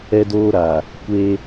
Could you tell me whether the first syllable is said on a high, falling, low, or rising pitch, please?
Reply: high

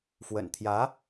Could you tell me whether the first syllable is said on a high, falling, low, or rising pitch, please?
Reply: low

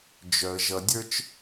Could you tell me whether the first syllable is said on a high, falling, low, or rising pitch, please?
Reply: low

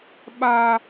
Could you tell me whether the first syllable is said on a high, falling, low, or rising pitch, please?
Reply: high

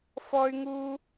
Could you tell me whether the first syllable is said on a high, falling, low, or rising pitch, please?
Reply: high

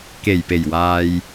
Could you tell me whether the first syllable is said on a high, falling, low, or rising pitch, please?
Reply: low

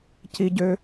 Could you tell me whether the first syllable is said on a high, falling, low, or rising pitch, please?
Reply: high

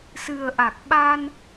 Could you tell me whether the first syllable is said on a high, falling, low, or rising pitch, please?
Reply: low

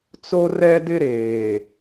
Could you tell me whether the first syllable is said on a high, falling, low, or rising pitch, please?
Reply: high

